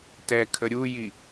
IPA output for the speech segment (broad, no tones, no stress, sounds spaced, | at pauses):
t ɛ kʰ ə ɾʲ u j i